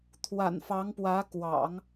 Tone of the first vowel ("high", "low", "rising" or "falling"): low